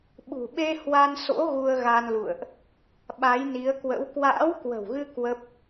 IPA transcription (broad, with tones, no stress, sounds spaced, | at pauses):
ɓ ṳ˨˩ ɓ e˧ h w a˧ n s o̰˧˥ ɣ u˧ ə̯ ɣ a˧ n l ṵ˧˨ ə̯ ʔ | ɓ a˨˦ j n i˨˦ ə̯ k w ə̰˧˥ w k w a̰ː˧˥ w k w ə̤˨˩ w ɣ ɨ˧ k w ə˦˥ p̚